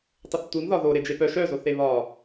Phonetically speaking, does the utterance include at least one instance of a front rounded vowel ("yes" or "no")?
yes